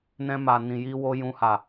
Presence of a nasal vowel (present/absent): present